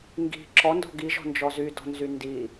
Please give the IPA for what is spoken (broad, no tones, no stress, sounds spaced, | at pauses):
ŋ ɡ i̤ ǁ ɔ n d ɔ̤ ɡ i ʒ ɔ̤ n d͡ʒ ɔ z y d ɔ̤ n z y n d i